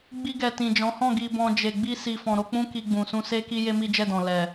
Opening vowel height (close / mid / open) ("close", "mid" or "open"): close